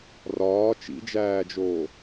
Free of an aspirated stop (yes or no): yes